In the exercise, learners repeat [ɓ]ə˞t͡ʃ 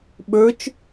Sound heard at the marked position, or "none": ɓ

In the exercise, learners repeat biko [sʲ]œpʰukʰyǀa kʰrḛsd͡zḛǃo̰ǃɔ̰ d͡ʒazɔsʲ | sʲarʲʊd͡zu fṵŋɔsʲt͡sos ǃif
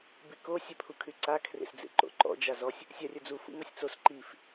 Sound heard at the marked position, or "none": sʲ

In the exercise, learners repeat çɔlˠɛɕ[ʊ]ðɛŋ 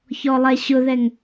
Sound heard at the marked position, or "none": ʊ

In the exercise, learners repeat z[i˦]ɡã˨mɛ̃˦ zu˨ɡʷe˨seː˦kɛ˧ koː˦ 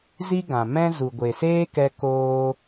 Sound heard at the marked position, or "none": i˦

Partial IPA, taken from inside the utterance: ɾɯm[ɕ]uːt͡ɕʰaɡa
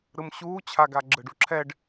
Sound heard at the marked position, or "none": ɕ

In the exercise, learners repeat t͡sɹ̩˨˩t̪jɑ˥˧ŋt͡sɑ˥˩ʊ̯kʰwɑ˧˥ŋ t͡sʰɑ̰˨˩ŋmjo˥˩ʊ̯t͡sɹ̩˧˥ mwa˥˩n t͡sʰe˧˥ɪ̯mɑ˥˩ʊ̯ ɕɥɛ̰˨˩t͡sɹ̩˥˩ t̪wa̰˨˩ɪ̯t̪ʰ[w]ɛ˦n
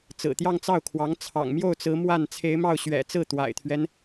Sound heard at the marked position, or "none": ɥ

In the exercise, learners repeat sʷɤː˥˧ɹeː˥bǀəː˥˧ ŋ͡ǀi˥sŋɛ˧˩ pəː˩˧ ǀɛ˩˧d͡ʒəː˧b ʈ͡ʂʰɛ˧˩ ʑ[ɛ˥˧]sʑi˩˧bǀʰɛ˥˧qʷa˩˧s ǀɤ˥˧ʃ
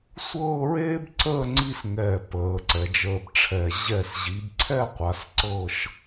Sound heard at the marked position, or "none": ɛ˧˩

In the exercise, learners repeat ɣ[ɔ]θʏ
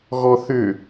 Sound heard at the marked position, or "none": ɔ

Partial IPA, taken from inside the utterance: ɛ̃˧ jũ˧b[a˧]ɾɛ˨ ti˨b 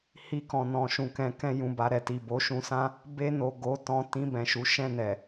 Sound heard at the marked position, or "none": a˧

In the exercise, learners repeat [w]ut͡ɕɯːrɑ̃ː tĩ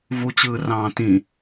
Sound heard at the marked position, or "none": v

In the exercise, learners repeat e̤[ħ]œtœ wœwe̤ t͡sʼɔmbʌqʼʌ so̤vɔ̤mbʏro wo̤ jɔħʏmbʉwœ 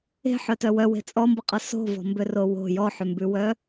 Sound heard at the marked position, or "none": ħ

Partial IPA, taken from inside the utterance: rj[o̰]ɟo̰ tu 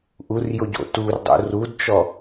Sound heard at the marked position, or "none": o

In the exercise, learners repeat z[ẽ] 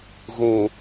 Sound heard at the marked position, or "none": ẽ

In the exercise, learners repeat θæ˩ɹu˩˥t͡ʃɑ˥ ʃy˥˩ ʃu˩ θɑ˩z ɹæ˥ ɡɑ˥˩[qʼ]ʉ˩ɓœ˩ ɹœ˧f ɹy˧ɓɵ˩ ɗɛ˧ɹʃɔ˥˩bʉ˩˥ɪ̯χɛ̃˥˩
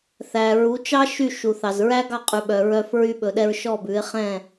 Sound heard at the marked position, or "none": qʼ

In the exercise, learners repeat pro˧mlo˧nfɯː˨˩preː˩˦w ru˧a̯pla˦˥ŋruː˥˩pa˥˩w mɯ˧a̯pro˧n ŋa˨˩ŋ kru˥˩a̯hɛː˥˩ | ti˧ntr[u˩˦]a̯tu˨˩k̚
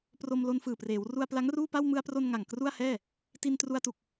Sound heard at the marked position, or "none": u˧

